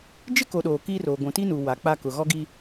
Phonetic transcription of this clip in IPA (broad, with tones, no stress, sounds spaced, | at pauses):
d͡ʒ ɪ˦ k o˨ ɗ oː˨ k i˦ r o˨ ɡʷ ũ˨ t i˦ n u˨ w a˨˦ k͡p a˦ k ʊ˨ ɣ ɔ˦ ɡ i˦